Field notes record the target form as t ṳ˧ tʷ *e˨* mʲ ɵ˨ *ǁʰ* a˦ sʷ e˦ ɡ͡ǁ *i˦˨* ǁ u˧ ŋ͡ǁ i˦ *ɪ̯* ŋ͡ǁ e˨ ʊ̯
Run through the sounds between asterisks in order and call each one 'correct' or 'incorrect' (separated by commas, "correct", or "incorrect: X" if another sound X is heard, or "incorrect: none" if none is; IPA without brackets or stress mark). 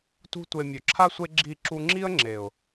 correct, correct, correct, incorrect: ə̯